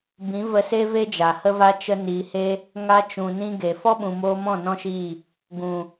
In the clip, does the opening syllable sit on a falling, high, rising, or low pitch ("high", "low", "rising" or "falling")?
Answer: rising